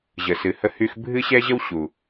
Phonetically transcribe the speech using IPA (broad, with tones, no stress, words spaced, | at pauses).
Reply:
ʑə˨sɨ˨hə˧hy˧x bʱɨ˦ ɕɛ˦ʑə˦w ɕu˨